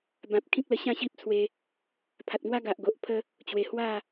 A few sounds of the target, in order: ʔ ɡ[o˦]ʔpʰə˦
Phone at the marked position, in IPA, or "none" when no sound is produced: o˨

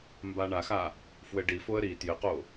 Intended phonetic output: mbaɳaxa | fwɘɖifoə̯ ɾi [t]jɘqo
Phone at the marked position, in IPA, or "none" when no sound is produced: t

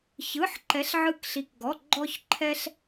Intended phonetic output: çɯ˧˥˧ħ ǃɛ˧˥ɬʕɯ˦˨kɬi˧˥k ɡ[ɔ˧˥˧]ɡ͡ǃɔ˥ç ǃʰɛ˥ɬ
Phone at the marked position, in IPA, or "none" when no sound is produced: ɔ˧˥˧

